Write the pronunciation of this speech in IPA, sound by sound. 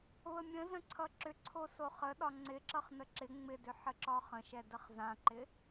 β ə mʲ ə̃ z ə̃ ǀʰ ʌ ǁ ʏ ǀʰ o s o χ ə ɗ ɒ ŋ͡ǀ ɪ ǁ ʌ χ n ə ǁ ɪ ŋ͡m ɪ d ʏ ħ ə ǁ ɒ χ ə̃ ʃ ɛ d ə χ z ã ǃ ɪ

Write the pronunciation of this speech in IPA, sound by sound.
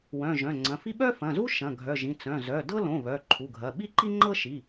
w œ̃˩˧˩ ʒ œ̃˩˧˩ ŋ͡ǀ ɐ̃˩˧˩ f i˥ ɓ œ˥ f ɐ̃˩˧˩ z u˥ ʃ ɐ̃˩˧˩ ɡʱ œ˩˧˩ ʒ ĩ˩˧˩ t͡s œ̃˩˧˩ z œ˩˧˩ d ɤ˥ l õ˩˧˩ β œ˩˧˩ ǃʰ u˩˧˩ ɡʱ ɐ˩˧˩ ɓ i˥ ǃ i˥ ŋ͡ǃ ɤ˥ ʃ i˩˧˩

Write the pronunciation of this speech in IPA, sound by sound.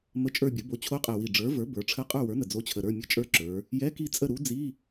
m ə˧˥˧ t͡ʃʼ ə˞˦˨ bʲ ə˩˥ b o˩˥ t͡ɕʰ o˧˥ qʼ ɛ˨˩ w i˨˩ ɖ͡ʐ ə˞˩˥ v ə˞˩˥ b ə˞˩˧ ʈ͡ʂʰ ə˧˥˧ qʼ ə˞˦˨ w ə˞˩˥ n ə˨˩ d͡z o˧˥ t͡ɕʰ ə˨˩ ɾ ə˞˧˥˧ mʲ ə˧˥ t͡ʃʼ ə˞˦˨ ǁ ə˞˩˧ | j ɛ˧˥˧ k i˦˨ t͡sʼ ə˦˨ ɾ u˧˥ d͡z i˧˥˧

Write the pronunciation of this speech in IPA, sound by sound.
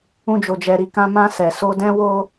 ũ˧ d͡ʒ o˨ d͡ʒ ɛ˨ ɾ i˨ k ã˧ m ã˧ s ɛ˨ s o˧ d ɛ̃˦ w o˦

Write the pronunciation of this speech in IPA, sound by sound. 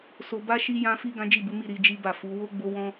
s o˧ b a˦ ʃ i˧ j ã˧ f i˧ ɡ ã˦ d͡ʒ i˦˨ b u˨˦ m i˦˨ ɾ i˧ d͡ʒ i˦ b a˦˨ f u˨˦ w o˦ ɡ͡b o˧ w ɔ̃˧

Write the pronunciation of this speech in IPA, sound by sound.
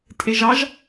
tʼ e ʒ ɑ ʒ

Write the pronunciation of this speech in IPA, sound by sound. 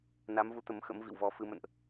n a˨˦ m v u˨˦ t̪ ə˨˦ m x ə̰˧˥ m v ḭ˧˨ w v ɔ˧ f ɨ˨˦ m ə̰˧˨ n ʔ

